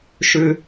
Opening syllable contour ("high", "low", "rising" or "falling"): low